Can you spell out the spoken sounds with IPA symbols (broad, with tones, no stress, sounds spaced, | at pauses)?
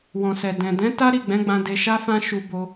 w ɔ̃˨ s ɛ˨ d ɛ̃˨ d ɛ̃˨˦ t a˦ ɾ i˦˨ ɡ͡b ɛ̃˨˦ ɡ͡b ã˧ d e˧ ʃ a˦ f ã˦ ʃ u˧ b o˧